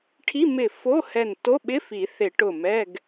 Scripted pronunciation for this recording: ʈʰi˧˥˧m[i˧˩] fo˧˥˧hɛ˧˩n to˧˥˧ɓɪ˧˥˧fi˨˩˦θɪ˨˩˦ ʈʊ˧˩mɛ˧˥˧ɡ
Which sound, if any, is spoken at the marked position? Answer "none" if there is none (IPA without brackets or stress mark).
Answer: ɪ˧˩